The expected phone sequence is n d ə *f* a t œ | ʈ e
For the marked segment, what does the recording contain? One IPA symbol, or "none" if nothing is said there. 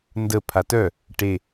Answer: pʰ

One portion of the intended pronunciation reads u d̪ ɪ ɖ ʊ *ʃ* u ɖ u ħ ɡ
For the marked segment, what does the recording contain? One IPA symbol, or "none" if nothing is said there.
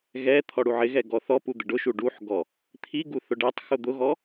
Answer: ʃ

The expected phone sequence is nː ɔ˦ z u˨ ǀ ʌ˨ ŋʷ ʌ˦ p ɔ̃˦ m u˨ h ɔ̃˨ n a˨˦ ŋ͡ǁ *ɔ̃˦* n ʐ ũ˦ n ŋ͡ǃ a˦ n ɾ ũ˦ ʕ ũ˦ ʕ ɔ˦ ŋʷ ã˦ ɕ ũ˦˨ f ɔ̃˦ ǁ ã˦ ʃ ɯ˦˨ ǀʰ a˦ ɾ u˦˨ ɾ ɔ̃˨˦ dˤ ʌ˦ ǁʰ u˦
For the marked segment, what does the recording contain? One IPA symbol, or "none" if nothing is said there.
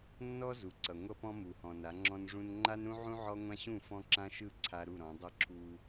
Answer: ɔ̃˦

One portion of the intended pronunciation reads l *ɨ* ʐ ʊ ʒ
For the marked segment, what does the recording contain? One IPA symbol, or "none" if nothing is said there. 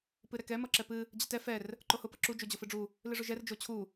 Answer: ɨ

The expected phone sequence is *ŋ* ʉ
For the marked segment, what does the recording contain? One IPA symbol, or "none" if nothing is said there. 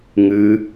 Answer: ŋ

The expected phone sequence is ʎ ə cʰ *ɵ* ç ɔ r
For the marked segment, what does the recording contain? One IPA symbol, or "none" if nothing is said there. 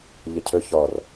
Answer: ɵ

